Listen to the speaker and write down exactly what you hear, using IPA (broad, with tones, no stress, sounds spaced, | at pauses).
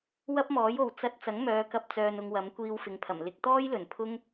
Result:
w ɐ˥ p̚ m ɔː˨˥ j o˨ w t͡s ɐ˧ t̚ t͡s ɐ˨˥ ŋ m œː˨˧ k ɐ˧ p̚ t͡s œː˧ n ʊ˧ ŋ w ɐ˨˥ m kʷ iː˧ w f ɪ˨ ŋ pʰ ɐ˨˩ m l ɪ˨ k̚ t̪ ɔː˥ j l ɵ˨˩ n pʰ ʊ˥ ŋ